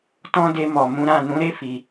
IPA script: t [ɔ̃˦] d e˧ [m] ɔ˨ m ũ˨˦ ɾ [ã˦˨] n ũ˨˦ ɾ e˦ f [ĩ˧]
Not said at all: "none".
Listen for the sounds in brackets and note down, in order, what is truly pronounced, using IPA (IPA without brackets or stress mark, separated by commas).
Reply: ɔ̃˦, m, ã˦˨, i˧